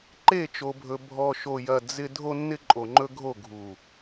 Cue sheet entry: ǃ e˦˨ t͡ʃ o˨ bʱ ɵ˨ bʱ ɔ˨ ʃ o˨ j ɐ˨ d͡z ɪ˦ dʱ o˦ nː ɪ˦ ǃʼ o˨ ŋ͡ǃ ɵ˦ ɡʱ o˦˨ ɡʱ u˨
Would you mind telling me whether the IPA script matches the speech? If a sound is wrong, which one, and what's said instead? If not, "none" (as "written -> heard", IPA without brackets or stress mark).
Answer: none